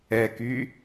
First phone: ɛ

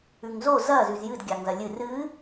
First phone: ʉ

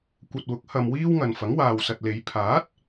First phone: kʷ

